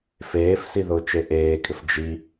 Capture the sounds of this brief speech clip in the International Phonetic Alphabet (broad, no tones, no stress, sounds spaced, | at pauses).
f eː f s i ð ʊː t͡ʃ e ʔ eː kʼ ɪ f d͡ʒ i